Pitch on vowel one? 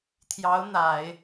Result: rising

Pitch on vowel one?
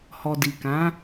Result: low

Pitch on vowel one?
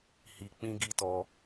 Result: low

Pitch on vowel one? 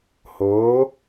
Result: rising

